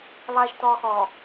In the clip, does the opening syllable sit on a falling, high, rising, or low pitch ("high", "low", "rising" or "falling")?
low